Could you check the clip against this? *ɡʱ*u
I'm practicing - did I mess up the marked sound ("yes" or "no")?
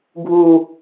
no